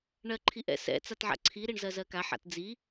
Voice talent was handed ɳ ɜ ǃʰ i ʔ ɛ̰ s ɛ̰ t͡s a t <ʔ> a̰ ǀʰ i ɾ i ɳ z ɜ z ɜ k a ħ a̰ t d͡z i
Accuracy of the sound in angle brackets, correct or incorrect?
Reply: incorrect